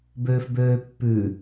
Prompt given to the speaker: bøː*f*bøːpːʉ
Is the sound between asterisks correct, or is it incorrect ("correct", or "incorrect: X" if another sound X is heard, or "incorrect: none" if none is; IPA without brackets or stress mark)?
correct